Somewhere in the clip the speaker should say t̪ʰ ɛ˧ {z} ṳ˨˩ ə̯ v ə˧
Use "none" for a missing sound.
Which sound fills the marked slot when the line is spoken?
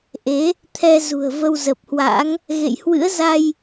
z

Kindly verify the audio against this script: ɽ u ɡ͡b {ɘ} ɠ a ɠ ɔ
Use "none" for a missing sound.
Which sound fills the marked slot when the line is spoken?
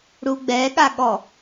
ɛ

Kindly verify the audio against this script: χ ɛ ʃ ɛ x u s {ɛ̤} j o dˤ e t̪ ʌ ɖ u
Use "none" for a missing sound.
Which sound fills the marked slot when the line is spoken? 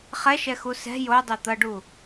ɛ̤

